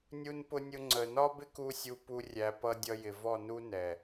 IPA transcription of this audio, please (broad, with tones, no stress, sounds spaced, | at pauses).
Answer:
nʲ u˦ n p ʊ˦ nʲ ʊ˦ ŋ͡ǀ ə˨ n ɒ˦ b ɪ˦ k u˦ sʲ u˧ p u˧ rʲ æ˧ p ʌ˧ dʲ ʌ˧ j ɪ˨ v ɔ˦˨ n u˦ n ɛ˨